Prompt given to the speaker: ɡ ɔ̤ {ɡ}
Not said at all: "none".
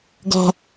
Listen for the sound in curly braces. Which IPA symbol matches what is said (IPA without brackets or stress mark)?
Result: none